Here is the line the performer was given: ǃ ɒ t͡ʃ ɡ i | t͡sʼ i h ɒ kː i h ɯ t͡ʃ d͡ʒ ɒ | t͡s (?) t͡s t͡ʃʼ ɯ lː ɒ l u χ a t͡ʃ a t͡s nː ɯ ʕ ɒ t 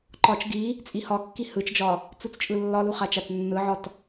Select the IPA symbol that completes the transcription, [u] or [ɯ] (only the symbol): u